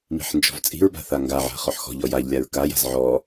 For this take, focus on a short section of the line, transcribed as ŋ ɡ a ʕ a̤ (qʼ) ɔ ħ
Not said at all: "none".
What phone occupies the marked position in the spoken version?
χ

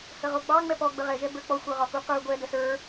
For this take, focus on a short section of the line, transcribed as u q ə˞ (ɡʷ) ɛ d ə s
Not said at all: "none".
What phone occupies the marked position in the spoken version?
ɡʷ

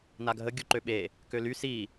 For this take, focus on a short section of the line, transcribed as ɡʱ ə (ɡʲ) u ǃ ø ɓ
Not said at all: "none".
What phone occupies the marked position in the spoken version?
ɡʲ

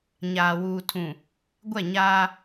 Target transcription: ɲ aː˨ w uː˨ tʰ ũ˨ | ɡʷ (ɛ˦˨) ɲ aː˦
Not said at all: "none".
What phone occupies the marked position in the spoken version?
ɛ˦˨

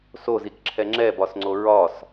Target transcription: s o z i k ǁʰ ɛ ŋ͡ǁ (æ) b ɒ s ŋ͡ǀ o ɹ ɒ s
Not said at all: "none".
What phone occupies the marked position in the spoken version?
ɛ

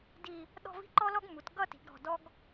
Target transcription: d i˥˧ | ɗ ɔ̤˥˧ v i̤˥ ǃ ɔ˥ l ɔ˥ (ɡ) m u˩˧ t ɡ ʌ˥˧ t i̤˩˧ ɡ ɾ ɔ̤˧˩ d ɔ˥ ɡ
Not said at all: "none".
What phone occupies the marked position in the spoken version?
ɡ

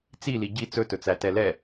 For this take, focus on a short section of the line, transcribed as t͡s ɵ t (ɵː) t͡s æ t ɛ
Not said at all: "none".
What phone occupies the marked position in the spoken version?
ɵ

